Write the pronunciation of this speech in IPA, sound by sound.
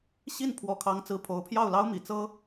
ɕ i˥˩ n pʰ w ɔ˧˥ kʰ ɑ˧˥ ŋ t͡s ɹ̩˧˥ pʰ o˧˥ ʊ̯ pʰ j ɑ˥˩ ʊ̯ l ɑ˥ ʊ̯ m i˨˩ t͡s ɤ˥

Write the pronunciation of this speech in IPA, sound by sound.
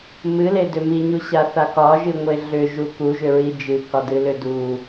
m ɨ l e d ʏ m i ɲ u ɕ a θ a k ɒ ʒ ɨ ŋʷ e ɮ ʏ ʒ u k u ʒ ʏ ɹ i d͡ʒ ɨ k ɒ d ɨ l ʏ d u

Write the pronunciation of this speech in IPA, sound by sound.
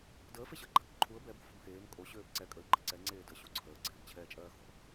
d əː f e ɕ əː ɡ͡ǃ a k ǃʰ u ə̯ b ɛ b o̤ f o̤ m x eː m kʼ o ɕ øː b ǀ ɛ kʼ ə ɪ̯ ɡ͡ǃ ə ǀ ɛ ŋ͡ǀ eː d ə ɕ u ǀʰ əː ɡ͡ǀ eː b t͡ɕʰ ɛː t͡ʃʼ ɜː x o̤

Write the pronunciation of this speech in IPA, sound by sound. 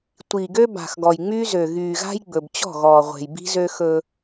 tʷ i˨ ɡ ø˦ b a̤˨ x ɡ ɔ˨ j ŋ͡m y˦ z ø˨ ɣ yː˨ ɣ a̤˦ j ɡ͡b ɵ˨ b t͡ɕ ɔ̤˦˨ ɣ ɔː˨ ʁʷ e̤˨ j b i̤˦ z ø˦ x ɵ˦

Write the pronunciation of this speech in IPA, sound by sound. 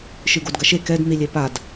ʃ ɨ ɡ o d ɡ ɐ ʃ e k ɛ d n̪ i lʲ e p a d

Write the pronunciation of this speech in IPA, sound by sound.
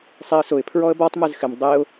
sˤ i ə̯ s ʊ ɪ̯ pʰ ɹ ɔ ə̯ b ɔ tˤ m ɛ z x ɪ m dˤ e ʊ̯

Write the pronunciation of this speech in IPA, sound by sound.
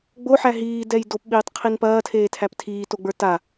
ɡ͡b o ħ æ ɦ iː d ɛ j d o p ɓ iː tˤ qʰ i n p ɐː tʰ eː tʰ æ p tʰ iː t o ɡ͡b ə˞ t a

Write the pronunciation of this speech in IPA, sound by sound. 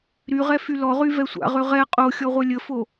ɾ y ʁ ɛ f y l ɔ ʁ y v ɛ sʷ a̰ ʁ ø ʁ ɛ qʼ o xʲ ɔ ʁʷ œ lʲ ə f o

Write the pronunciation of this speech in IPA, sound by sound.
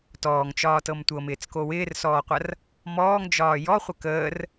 t ɔː ŋ t͡ʃ ɒː t ɤ m tʷ ɤ m ɪː t͡s k o w ɪː r s ɔː qʷ ɐ r | m ɔː ŋ d͡ʒ ɒː j ɔ χʷ ə k əː r

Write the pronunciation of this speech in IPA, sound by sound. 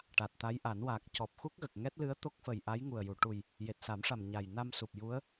ʈ a˨˩ t̚ t̪ a˧˥ j ʔ a˨˩˦ n w aː˨˩ k̚ c ɔ˨˩ p̚ x u˦˥ k̚ ɣ ə˨˩ k̚ ŋ ɛ˦˥ t̚ l ɨ˧˥ ə̯ t̪ o˦˥ k̚ f ə˨˩ j ʔ a˧˥ j ŋ u˨˩ ə̯ j u˨˩˨ ʈ u˨˩ j | j e˨˩ t̚ s a˨˩˦ m ʂ a˨˩ m ɲ a˨˩ j n a˧ m s u˨˩ p̚ j u˧˥ ə̯

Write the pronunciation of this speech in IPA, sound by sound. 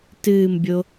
t ɨː m bʲ o

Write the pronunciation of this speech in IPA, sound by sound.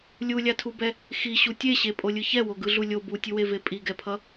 lʲ u lʲ a tʰ u b ɛ | x i ɕ u tʲ e ɕ e pʼ o lʲ ɯ ç ɛ w o ɡ ɯ ɮ u lʲ o b u tʲ ɯ w e v e pʼ i ɡ ɛ pʰ ʌ

